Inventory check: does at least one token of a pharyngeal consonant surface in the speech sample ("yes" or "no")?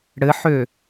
yes